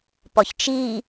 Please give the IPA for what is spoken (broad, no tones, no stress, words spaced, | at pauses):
pɔçt͡ʃi